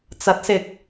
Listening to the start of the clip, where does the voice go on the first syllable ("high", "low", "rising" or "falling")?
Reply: rising